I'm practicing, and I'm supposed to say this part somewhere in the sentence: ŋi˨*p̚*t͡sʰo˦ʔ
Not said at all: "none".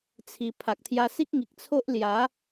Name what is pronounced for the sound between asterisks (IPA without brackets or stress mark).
k̚